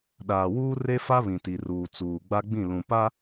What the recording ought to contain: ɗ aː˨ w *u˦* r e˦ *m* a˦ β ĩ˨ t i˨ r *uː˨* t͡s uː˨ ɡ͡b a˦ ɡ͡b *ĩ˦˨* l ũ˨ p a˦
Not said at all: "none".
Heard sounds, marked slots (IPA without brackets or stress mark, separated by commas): uː˦, f, uː˨, ĩ˦˨